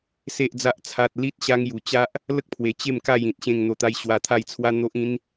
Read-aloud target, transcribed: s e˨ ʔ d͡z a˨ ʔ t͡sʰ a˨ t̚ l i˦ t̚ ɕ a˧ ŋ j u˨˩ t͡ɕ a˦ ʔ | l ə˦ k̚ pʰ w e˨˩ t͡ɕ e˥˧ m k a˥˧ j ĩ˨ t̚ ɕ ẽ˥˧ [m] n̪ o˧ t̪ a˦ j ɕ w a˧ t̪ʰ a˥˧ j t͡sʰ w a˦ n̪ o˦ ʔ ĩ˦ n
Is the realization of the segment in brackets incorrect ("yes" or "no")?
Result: yes